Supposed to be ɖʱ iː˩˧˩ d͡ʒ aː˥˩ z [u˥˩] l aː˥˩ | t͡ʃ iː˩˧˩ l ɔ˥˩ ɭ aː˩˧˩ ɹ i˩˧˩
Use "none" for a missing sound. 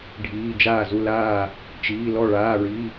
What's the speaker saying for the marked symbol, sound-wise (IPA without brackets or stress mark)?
u˥˩